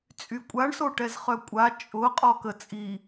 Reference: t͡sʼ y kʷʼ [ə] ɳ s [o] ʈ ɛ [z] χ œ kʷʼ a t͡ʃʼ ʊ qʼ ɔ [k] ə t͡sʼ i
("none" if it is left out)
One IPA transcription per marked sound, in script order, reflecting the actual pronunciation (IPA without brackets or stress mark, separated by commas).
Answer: a, o, z, k